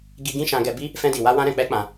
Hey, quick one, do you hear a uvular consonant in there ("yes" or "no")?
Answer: no